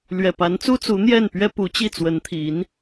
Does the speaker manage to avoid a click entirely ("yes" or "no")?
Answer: yes